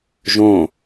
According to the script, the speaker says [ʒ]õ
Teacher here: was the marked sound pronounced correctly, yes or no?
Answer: yes